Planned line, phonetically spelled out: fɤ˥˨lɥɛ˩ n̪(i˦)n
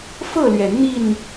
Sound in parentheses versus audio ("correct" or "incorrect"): incorrect